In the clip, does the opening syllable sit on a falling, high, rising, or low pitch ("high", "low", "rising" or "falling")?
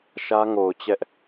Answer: high